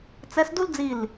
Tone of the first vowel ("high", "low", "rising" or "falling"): rising